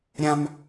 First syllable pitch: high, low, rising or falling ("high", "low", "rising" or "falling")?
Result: high